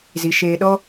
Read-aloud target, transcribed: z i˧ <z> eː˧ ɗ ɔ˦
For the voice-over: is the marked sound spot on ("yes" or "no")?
no